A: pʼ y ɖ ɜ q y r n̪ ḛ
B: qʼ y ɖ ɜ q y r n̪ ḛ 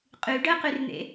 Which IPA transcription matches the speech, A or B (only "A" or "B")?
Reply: B